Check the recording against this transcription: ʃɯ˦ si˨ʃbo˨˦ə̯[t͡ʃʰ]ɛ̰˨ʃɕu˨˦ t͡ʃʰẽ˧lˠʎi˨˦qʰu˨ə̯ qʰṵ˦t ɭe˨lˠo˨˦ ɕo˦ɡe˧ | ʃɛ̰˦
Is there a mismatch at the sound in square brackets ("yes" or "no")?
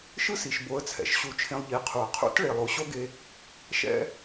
yes